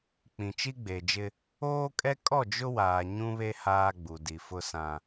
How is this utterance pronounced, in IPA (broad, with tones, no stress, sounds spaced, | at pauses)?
k͡p ĩ˨ t͡ʃ i˦ ɡ͡b e˨ d͡ʒ ɪ˦ | oː˦ kʼ ɛ˦ kʼ ɔ˦˨ d͡ʒ ʊ˦ w aː˨ ɲ ũ˦ β e˦ h aː˦ ɡ͡b u˨ d i˨ f ʊ˦ s ã˦